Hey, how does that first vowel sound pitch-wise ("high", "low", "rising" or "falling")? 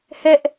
high